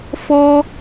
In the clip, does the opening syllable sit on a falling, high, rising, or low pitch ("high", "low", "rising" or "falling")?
high